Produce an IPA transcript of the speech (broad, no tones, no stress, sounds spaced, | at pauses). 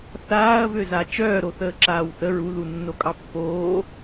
θ aː ɐ̯ v ø z a t͡ʃ œː ɾ o θ əː ǁ aː w θ ə ɹ u ð u nː o kʼ ɑ pː oː